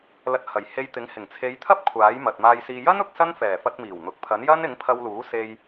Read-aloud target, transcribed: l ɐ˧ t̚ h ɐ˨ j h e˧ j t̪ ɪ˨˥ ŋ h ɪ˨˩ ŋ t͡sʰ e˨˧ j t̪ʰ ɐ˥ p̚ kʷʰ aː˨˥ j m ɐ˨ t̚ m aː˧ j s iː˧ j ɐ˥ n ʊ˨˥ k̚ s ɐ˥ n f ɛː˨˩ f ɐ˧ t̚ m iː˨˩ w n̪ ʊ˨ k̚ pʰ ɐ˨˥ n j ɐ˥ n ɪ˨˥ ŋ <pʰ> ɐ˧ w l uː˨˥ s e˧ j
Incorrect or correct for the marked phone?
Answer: correct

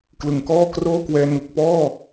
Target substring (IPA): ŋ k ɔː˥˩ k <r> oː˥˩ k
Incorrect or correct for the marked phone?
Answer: correct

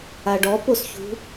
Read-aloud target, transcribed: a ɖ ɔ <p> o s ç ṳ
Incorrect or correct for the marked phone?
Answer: correct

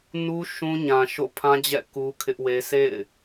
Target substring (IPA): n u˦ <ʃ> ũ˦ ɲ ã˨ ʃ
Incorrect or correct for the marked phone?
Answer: correct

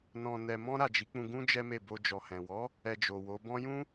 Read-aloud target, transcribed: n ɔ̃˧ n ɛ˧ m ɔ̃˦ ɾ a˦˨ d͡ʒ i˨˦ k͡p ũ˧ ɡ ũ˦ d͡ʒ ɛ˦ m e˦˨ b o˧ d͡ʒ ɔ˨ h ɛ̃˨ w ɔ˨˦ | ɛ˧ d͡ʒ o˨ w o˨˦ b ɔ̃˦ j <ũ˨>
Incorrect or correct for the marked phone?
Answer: incorrect: ũ˦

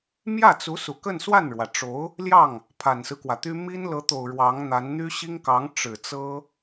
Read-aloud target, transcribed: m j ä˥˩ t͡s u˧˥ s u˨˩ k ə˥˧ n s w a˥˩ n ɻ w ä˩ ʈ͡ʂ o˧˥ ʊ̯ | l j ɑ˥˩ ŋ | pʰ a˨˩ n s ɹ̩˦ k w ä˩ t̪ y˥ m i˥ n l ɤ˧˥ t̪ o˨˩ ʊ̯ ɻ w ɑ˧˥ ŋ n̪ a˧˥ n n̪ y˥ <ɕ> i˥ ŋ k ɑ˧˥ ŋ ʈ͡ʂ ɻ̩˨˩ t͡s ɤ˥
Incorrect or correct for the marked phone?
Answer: correct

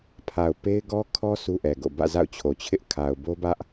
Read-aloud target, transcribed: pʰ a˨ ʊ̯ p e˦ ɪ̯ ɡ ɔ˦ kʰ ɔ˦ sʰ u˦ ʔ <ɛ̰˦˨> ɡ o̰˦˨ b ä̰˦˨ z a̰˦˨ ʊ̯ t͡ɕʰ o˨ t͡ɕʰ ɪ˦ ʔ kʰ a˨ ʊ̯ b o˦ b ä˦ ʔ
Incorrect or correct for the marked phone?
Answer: incorrect: ɛ˨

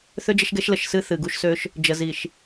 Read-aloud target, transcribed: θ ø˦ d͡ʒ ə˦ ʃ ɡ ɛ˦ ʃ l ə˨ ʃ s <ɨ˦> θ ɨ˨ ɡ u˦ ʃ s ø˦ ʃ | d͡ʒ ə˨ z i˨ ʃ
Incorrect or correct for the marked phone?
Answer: correct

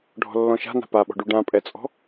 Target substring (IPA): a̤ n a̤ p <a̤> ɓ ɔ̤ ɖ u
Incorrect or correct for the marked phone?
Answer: incorrect: a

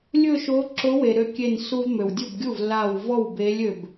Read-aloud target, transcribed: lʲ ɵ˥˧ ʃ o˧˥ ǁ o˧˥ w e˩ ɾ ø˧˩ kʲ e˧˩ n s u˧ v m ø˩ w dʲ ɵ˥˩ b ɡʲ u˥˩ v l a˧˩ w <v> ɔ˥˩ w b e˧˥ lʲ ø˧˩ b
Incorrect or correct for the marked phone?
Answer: correct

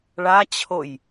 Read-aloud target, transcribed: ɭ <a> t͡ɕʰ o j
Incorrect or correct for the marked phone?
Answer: correct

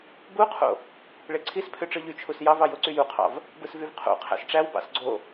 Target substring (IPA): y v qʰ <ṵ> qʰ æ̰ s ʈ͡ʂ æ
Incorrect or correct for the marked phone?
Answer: incorrect: o̰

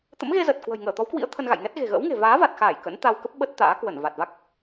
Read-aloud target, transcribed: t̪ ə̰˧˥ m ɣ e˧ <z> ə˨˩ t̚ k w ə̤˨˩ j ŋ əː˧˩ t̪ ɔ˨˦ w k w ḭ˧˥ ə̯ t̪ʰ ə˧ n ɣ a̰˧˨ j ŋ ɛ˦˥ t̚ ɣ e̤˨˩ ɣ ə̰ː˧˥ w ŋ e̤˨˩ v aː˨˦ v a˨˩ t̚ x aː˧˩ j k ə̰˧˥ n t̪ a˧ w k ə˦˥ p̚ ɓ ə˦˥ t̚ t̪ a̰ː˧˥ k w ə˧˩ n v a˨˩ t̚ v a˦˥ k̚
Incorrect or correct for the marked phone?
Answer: correct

